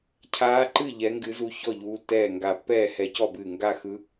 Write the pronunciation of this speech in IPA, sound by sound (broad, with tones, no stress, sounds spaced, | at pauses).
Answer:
cʰ aː˧˥ ǃ ɨ˥˨ ʎ ɛ˧˥ ŋ ɡ ɨ˧˥ z u˧˥ ç ɔ˥˨ ʎ uː˧˥ tː ɛː˥˨ ŋ ɡ a˧˩ pː ɛː˥˨ h ɛ˧˥ c ɔ˥˨ b ɨː˧˩ ŋ ɡ a˥˨ x ɯ˧˥